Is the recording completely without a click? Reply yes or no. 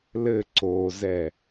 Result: no